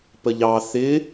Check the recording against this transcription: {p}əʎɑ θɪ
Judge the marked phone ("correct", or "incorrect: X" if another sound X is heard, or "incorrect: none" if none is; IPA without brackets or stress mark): correct